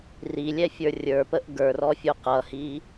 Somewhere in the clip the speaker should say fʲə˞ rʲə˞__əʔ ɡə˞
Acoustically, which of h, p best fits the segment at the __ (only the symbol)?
p